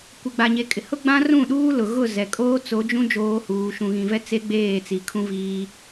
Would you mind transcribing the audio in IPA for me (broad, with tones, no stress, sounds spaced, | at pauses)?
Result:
kʷ e˨ ɡ͡b a˨ ɲ e˨ kʼ ɪ˨ h ʊ˦ ɡ͡b ã˦ r ũ˦˨ ɗ uː˦ l ʊ˨ ɣ ʊ˦˨ z ɛ˨ kʼ oː˦ t͡s o˨˦ d͡ʒ ũ˦ d͡ʒ oː˦ h uː˨˦ ʃ ũ˨ ɣ ĩ˨ v ɛ˦ t͡s e˦ ɡ͡b eː˦˨ t͡s i˨ kʰ ũ˦ v iː˦